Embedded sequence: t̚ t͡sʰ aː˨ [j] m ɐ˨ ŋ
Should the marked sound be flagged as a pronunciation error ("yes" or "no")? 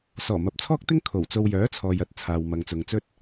yes